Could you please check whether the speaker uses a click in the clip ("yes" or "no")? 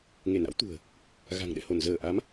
no